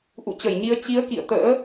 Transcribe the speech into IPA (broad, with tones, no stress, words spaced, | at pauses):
ʔṵ˧˨ t͡ɕə˧˩jɲi˨˦ə̯ t͡ɕi˨˦ə̯ kḭ˧˨ə̯t̪ə̰ː˧˥